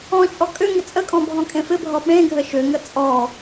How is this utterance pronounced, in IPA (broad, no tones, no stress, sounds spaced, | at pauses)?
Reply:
ɔ̃ t͡ʃʼ ɔ kʼ ʏ ŋ ɪ t͡sʼ ə kʼ ɔ̃ bʱ ɔ̃ kʼ ẽ f ɪ bʱ ɔ ɓ ẽ ɡʱ ə ʃ ʏ ŋ ə t͡sʼ ɔ